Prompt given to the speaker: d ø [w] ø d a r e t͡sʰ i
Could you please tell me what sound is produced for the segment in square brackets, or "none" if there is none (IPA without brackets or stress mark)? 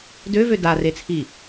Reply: v